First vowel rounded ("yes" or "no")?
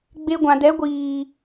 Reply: no